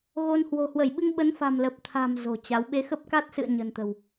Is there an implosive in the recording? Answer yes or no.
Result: yes